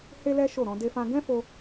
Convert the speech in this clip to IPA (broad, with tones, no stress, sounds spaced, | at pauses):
h e˦ l ɛ˦ ʃ o˦˨ ɾ ɔ̃˧ d e˦ f ã˦ ɡ ɛ̃˦ f o˧